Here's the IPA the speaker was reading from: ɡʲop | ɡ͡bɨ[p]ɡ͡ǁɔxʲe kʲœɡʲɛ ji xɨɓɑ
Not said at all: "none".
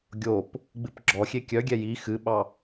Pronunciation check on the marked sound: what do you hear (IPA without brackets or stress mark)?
p